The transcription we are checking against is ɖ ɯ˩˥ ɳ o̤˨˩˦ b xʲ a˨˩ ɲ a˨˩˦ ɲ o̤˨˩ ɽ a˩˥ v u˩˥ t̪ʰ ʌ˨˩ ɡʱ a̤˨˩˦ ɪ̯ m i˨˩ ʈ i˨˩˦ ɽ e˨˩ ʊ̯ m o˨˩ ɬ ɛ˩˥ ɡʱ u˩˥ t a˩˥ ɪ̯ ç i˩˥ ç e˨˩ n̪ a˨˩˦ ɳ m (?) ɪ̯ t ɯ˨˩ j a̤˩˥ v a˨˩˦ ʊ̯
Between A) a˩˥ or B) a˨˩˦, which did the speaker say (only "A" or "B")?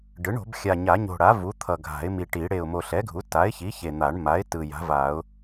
A